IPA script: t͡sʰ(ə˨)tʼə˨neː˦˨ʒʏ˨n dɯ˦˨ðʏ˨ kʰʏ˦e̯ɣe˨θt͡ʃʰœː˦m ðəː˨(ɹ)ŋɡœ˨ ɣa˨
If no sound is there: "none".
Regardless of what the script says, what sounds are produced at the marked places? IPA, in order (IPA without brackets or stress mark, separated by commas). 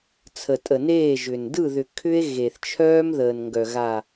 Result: ə˨, n